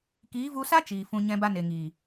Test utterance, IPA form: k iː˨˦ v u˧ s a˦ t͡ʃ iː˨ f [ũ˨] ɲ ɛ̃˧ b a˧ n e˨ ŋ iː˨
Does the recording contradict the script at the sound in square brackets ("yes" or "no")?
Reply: no